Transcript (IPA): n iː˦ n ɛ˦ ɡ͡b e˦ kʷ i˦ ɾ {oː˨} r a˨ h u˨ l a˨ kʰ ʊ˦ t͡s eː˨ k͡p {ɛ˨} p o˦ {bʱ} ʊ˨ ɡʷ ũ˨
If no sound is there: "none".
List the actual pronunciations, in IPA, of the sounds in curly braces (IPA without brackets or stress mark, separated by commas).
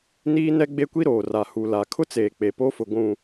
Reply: oː˨, e˨, f